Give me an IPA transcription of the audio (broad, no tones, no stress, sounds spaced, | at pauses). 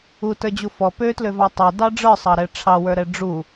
u t ə˞ d͡ʑ u f ɔ p ø t l ø v ɑ tˤ ɛ d ɑ ɖ͡ʐ ə˞ sˤ ɑ ɾ ɛ ʈ͡ʂʰ ɑ w ə˞ ɾ ɛ ɖ͡ʐ u